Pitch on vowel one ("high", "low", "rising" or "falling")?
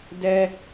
high